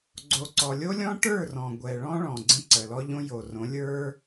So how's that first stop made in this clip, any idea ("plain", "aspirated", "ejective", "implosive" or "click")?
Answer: click